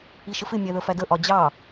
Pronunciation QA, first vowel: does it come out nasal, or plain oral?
oral